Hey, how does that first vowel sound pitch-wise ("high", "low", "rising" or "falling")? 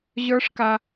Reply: high